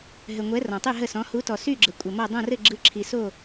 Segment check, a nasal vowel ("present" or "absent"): present